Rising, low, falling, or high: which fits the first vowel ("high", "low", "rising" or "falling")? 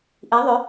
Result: rising